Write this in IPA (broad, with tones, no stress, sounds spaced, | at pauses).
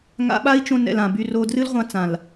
ŋ a̰˧ ɓ a˦ i̯ t͡ʃ õ˧ n ɛ̰˨ l ã˨ b y˧ r o˧ d r ɨ˦ l ʁʷ ã˧ t͡s ã˨ l